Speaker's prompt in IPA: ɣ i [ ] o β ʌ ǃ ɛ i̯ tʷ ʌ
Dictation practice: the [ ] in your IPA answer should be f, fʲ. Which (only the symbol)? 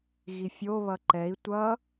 fʲ